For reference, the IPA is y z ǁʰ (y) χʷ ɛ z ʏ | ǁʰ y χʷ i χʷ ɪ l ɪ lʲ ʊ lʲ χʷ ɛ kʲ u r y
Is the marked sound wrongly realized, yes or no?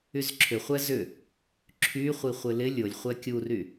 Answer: yes